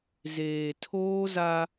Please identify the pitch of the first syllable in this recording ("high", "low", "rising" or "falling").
low